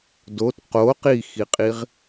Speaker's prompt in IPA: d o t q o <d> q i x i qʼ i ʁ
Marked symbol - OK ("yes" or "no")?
no